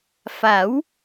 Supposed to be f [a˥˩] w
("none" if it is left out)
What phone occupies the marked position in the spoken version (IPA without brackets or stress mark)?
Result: a˩˦